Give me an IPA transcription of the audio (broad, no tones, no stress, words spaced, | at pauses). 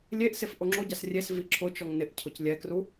lʲeʔsef ʔoŋ͡ǁoɟas rʲes viǁʰʊt͡ʃɔŋ nɪʔ cʰʊclʲɛkru